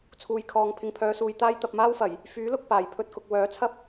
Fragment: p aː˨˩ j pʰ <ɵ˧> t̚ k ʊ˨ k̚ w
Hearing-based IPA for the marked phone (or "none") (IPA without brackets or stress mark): ɵ˧